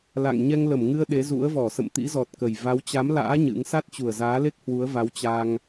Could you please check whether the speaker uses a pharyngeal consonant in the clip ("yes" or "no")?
no